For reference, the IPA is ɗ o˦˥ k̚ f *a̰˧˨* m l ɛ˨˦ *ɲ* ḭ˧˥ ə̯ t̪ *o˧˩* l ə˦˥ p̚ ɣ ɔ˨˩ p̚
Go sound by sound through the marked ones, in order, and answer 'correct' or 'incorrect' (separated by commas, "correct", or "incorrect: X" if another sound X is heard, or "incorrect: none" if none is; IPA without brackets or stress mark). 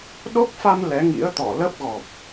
incorrect: a˧, incorrect: ŋ, incorrect: ɔ˧˩